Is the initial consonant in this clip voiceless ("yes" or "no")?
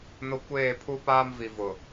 no